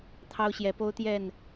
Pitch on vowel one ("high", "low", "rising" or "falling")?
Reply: high